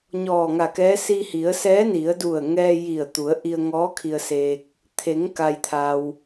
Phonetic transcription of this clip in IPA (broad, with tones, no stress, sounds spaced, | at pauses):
ɲ ɔː˧˩ ŋ a˧˩ k ɛː˧˥ s i˧ h i˩˧ ə̯ s ɛː˧˥ n i˩˧ ə̯ d u˧˩ ə̯ ŋ ɛː˧ j i˧˩ ə̯ t̪ u˩˧ ə̯ ʔ i˧ ə̯ ŋ ɔː˧˥ kʰ i˧ ə̯ s eː˧ k̚ | t̪ʰ e˩˧ ŋ k a˩ j t̪ʰ a˩ w